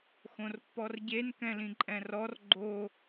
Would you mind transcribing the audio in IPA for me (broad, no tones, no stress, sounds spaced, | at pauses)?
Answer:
x õ r pː ɔ r ɟ e n k ɛ̃ l ĩ ǃʼ ɛ̃ r ɔ r ɡ͡ǃ o